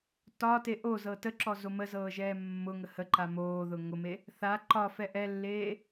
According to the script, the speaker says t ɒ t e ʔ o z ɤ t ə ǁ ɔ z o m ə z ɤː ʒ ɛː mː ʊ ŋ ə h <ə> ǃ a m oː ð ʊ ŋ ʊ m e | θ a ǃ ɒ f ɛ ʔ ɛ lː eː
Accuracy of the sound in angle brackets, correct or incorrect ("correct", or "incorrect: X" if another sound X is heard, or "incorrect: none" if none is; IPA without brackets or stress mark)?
correct